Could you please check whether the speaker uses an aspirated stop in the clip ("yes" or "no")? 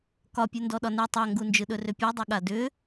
no